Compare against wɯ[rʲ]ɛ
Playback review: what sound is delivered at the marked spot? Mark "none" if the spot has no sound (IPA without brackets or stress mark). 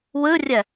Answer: rʲ